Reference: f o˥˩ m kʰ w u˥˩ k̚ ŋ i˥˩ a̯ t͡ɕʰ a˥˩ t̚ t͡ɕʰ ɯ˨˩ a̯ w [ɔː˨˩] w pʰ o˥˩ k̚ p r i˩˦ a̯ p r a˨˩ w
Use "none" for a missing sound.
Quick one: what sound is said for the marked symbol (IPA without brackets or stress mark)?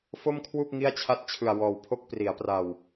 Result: ɔː˨˩